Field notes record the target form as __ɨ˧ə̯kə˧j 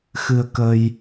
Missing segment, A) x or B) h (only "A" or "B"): A